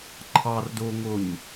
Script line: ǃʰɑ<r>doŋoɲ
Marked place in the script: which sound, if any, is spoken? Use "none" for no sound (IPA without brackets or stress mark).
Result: r